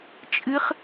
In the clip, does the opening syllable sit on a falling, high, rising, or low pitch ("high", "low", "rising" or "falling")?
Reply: rising